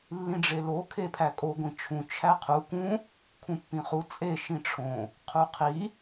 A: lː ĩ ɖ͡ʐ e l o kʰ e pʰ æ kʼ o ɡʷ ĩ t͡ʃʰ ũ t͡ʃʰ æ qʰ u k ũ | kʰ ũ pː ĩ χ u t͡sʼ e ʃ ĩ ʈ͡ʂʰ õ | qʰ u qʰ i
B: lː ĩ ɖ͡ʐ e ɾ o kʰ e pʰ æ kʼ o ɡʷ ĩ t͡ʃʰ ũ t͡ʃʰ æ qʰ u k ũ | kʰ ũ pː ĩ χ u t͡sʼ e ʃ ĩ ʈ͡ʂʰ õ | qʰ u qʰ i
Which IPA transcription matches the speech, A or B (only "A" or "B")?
A